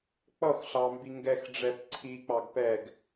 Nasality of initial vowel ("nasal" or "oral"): oral